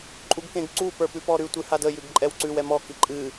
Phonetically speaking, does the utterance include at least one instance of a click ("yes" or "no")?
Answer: yes